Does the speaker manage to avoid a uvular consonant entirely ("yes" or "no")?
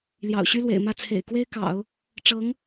yes